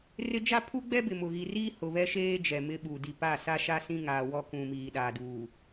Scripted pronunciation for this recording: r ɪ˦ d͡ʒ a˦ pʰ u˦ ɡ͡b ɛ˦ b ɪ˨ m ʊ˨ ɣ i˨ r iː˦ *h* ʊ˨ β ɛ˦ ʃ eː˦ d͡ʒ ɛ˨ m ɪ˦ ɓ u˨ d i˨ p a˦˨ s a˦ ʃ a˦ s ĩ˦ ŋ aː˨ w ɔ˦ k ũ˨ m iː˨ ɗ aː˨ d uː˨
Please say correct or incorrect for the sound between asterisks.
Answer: correct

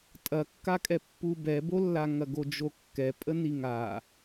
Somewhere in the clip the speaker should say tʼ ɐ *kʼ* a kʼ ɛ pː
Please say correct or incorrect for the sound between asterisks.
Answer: incorrect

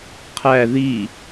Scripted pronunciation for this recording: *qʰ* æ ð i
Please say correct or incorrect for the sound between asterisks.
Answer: correct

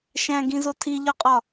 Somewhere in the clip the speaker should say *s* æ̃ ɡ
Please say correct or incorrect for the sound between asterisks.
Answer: incorrect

